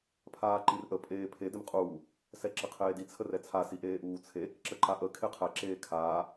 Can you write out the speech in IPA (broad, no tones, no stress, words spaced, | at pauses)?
pʰaːǃirʔə pʼeːpʰe dɪmqʼuː | sɛǁəqʰeːdi t͡sʰərɛt͡sʰa siʔeːʔuːt͡sʰe | ǁəǃaʔə kʰeqʰɛ ǁeːkʰaː